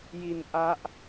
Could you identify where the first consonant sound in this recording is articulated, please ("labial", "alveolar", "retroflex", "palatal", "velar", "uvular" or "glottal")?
palatal